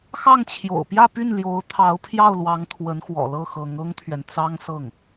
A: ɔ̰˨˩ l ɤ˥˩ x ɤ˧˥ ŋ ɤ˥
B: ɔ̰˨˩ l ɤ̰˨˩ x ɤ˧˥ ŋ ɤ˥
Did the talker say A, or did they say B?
A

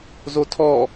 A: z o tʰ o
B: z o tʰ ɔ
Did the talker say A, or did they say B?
B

